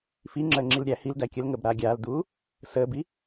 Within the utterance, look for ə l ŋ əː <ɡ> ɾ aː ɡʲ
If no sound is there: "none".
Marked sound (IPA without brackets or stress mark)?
b